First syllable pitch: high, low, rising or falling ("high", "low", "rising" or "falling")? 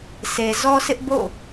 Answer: low